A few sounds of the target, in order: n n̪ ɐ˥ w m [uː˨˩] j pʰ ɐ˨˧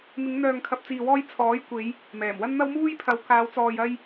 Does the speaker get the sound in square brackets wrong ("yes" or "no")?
yes